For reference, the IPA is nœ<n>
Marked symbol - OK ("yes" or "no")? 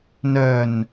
yes